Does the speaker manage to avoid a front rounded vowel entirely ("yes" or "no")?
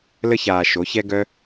no